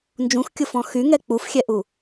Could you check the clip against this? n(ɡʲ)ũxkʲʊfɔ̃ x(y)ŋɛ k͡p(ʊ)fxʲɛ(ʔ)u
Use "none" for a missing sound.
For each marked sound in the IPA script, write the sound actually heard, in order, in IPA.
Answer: d͡ʒ, y, u, ʔ

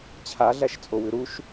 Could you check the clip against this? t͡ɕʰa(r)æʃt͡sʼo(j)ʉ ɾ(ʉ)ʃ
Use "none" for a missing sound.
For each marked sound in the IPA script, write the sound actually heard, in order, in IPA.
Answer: ɮ, w, u

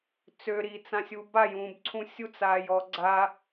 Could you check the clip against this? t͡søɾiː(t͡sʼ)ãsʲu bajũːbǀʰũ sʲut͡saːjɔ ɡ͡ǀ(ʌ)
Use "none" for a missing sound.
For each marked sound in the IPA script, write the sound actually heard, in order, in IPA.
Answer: t͡s, a

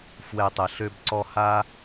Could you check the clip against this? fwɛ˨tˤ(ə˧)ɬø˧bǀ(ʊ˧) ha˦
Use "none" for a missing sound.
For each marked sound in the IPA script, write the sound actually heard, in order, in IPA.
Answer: ə˨, ɔ˧

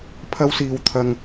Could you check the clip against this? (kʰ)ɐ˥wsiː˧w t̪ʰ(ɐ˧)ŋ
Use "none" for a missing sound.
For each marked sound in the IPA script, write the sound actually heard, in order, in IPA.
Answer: pʰ, ɐ˧

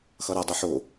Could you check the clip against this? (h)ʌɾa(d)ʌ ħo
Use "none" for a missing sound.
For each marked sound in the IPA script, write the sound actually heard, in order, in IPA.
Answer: x, dˤ

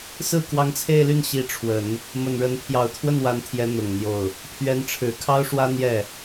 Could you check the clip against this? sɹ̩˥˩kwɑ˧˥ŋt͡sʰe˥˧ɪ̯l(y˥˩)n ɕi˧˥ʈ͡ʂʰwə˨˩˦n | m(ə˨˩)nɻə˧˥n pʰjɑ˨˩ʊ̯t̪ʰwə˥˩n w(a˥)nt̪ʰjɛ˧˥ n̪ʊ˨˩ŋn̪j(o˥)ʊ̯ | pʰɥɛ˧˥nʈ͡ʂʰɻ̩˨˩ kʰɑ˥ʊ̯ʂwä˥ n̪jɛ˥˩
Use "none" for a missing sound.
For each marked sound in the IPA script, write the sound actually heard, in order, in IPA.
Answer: y˥˩, ə˨˩, a˧˥, o˥˩

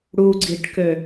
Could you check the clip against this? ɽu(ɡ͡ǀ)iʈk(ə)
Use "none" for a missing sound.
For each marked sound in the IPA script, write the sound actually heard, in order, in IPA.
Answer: ɡ͡ǀ, ø

